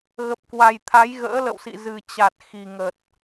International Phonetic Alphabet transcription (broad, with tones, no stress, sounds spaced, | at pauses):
ɣ ə˨˩ p̚ k w a˨˩ j t̪ʰ a˨˦ j ɣ ə̰ː˧˥ l ə̰˧˨ w s ḭ˧˨ z ɨ˨˩ t͡ɕ a˨˩ t̚ x i˨˩ ŋ ə˨˩ t̚